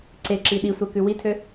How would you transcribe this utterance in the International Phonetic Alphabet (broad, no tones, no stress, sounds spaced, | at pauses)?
ǀ e ǁ i ɗ i sʷ ɛ k ʉ w i tʰ ø